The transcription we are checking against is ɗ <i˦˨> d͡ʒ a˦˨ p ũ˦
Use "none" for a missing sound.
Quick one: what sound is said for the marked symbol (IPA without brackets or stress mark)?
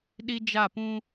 i˦